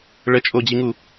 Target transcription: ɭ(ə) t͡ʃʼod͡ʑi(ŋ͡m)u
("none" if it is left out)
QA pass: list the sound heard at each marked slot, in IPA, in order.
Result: ə, ŋ

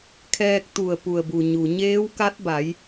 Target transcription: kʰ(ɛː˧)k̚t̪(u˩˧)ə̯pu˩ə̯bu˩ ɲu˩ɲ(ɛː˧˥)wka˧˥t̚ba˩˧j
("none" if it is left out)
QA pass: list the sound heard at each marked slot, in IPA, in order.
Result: ɛː˧, u˧˩, eː˧˥

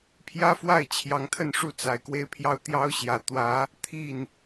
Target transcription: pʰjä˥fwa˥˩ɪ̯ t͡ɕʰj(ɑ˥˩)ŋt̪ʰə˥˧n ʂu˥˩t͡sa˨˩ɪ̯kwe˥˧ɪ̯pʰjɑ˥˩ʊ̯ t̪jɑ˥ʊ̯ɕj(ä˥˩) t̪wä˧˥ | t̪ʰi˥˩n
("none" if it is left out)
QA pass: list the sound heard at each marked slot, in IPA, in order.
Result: ɑ˧˥, ä˨˩

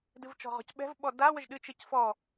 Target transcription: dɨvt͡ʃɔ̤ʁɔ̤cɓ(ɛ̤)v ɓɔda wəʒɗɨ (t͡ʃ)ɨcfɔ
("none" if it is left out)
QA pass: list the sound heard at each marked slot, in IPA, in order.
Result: ɛ̤, t͡ʃ

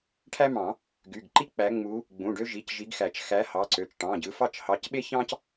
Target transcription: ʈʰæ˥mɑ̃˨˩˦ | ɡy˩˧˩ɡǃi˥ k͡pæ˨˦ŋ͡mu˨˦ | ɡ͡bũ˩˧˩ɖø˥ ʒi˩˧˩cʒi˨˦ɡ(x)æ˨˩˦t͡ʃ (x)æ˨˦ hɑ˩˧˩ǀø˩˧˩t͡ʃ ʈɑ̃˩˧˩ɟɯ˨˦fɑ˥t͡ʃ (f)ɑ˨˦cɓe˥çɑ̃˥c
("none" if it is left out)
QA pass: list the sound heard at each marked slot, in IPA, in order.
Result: x, x, h

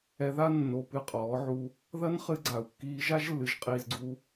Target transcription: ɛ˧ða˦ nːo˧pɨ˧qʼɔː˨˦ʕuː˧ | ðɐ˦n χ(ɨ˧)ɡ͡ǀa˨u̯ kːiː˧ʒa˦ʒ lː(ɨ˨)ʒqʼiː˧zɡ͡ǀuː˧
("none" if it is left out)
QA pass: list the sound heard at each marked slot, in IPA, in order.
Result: ɨ˧, ɨ˨

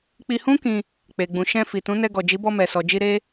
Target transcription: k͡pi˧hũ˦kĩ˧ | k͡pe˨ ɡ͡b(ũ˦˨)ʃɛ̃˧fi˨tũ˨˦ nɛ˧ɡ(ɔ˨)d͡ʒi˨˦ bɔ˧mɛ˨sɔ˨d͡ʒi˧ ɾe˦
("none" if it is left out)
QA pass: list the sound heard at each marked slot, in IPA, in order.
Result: ũ˨, ɔ˨

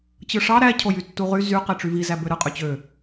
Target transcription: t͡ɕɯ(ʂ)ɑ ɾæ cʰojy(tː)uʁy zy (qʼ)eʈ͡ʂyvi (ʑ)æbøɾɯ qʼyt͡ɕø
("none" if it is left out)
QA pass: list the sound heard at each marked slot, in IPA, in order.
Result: ʂ, tː, q, z

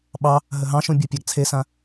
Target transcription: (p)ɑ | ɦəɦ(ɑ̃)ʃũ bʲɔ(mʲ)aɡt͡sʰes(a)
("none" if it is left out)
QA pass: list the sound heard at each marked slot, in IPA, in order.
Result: ɓ, ɑ̃, pʲ, ã

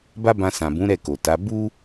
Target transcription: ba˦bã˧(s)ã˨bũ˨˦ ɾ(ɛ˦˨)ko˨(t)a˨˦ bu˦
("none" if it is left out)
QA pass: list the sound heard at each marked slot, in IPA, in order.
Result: s, ɛ˦˨, t

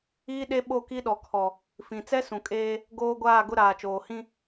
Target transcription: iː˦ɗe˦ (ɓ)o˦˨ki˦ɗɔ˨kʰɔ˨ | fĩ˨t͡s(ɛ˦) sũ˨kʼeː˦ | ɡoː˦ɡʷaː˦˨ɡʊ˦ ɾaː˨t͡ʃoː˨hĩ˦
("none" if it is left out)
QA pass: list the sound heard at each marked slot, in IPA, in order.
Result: ɓ, ɛ˦

